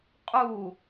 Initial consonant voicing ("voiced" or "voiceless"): voiceless